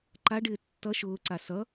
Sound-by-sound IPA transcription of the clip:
ǃ a ɖ ɪː tː ʌ ʃ ʊː ǀ a s ʌ

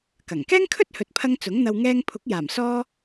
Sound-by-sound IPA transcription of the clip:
k ɐ˨˩ ŋ k ɛː˥ ŋ kʰ ɵ˥ t̚ h ɵ˨ t̚ pʰ ɐ˧ ŋ t͡s ʊ˨˥ ŋ n̪ ɐ˧ w ŋ ɛː˧ ŋ pʰ ʊ˨˥ k̚ j aː˨˩ m s ɔː˥

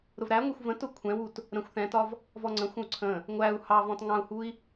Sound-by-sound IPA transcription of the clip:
ɾ ʊ v ɾ æ ŋʷ ɛ xʷ v ə̃ t ʊ kʷʰ ɛ̃ w u t | ɾ ə̃ xʷ θ ɛ̃ t ɒ v | v ɔ ŋ͡ǀ ə̃ xʷ ə̃ u̯ ǀʰ ə̃ | ŋʷ æ u̯ h ɑ v ɔ̃ t ŋ ɑ̃ u̯ h u i̯

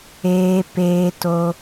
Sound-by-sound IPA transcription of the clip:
eː˧ p eː˦ t o˦

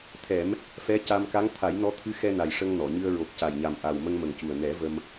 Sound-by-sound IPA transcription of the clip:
t̪ʰ ɛ˨˩˦ m | f ɛ˧˥ c a˧ m k a˧˥ ŋ t̪ʰ a˨˩˦ j n ɔ˧˥ t̪ʰ ɨ˧˥ x ɛ˧ n a˨˩ j ʂ ə˧ ŋ n ɔ˨˩˨ ɲ ɨ˧ ə̯ ɹ o˨˩ k̚ c a˨˩ j ɲ a˨˩ m ʔ a˨˩ w m ə˧ ŋ m ə˨˩ ŋ c u˨˩ ə̯ n ɛ˨˩˦ v ə˧ m

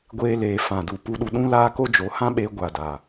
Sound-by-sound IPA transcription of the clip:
ɡʷ eː˧ l eː˨ f ã˨ d u˨ p u˧ ɗ u˧ ɗ ũ˦ l aː˦ k o˦ d͡ʒ o˨˦ h ã˦ ɓ eː˧ ɡʷ a˨ d a˨

